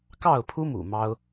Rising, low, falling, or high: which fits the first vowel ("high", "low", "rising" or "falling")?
falling